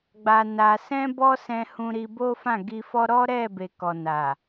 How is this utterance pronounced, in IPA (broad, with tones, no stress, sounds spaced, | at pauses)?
ɡ͡b a˧ n a˧ s ɛ̃˦ b ɔ˦ s ɛ̃˧ h ũ˧ ɾ i˧ b o˦ f ã˦˨ ɡ i˧ f ɔ˦ ɾ ɔ˦ ɾ ɛ˦˨ b e˨ k ɔ˨ n a˨